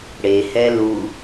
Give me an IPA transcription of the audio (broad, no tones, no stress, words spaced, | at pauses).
ɽe hɛlu